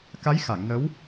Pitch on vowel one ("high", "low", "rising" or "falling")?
rising